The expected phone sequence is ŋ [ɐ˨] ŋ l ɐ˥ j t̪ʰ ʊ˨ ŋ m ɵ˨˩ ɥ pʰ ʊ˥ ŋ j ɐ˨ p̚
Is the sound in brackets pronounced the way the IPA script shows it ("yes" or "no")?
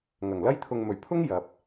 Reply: no